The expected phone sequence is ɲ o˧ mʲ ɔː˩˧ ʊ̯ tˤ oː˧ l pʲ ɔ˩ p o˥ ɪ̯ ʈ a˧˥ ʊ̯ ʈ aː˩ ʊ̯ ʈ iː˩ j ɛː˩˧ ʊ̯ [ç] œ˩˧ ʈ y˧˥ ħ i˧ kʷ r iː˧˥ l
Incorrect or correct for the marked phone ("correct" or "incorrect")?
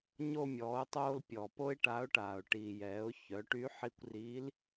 correct